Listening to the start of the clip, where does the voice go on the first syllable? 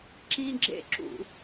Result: high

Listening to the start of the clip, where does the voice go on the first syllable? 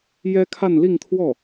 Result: high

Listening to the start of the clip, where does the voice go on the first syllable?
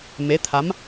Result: rising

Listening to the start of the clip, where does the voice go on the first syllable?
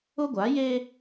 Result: high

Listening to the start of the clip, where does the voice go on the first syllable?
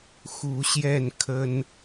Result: rising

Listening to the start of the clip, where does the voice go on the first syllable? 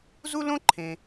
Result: high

